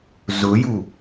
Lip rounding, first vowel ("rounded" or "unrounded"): rounded